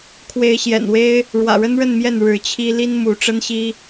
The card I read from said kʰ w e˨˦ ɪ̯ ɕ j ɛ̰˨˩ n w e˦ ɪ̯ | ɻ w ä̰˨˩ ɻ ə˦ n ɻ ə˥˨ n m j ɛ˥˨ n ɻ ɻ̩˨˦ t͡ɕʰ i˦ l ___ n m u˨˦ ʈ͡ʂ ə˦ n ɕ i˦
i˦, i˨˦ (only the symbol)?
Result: i˦